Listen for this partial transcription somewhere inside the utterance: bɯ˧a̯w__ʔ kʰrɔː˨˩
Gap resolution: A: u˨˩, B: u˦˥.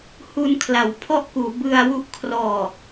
B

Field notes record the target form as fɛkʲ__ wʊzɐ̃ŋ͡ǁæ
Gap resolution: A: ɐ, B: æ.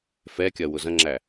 A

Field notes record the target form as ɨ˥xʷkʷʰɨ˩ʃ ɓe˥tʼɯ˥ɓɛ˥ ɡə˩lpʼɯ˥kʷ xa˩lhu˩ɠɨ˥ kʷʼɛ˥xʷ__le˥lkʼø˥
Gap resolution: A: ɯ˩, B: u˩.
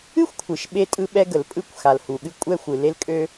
A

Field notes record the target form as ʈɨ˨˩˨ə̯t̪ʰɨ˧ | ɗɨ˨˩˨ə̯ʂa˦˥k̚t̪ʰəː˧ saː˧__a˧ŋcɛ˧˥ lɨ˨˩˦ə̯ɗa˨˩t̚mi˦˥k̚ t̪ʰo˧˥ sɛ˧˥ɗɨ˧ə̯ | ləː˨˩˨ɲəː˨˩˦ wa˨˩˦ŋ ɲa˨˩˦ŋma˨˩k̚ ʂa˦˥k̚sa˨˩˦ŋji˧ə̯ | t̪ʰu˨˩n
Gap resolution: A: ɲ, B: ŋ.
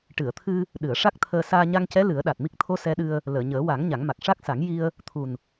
A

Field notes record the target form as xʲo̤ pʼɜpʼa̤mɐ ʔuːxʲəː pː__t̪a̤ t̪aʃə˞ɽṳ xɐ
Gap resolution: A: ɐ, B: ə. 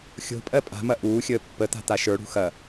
B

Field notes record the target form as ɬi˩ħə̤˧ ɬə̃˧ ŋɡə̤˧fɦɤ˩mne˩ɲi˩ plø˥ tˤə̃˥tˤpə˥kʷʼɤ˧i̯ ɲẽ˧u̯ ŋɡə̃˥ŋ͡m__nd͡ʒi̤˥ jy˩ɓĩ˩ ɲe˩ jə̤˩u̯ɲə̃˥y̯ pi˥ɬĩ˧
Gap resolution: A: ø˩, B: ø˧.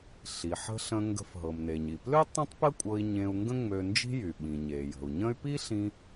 B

